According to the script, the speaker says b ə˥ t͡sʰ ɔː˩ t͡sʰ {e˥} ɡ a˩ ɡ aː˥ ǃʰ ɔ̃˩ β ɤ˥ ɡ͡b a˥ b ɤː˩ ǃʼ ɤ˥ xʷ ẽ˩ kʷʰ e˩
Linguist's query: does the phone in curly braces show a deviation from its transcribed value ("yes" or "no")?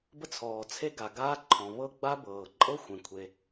no